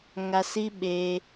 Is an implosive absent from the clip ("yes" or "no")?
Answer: no